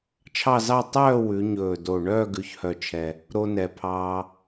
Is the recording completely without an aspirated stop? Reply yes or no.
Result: no